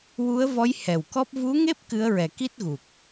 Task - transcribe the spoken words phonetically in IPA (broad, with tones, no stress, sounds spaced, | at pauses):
w u˧˥ ə̯ v ɔ˧˥ j h ɛ˨˩ w k ɔ˦˥ p̚ v u˧˥ ŋ e˦˥ p̚ k ɨ˧˥ ə̯ ɹ ɛ˨˩ k i˦˥ t̚ ɣ u˨˩ k̚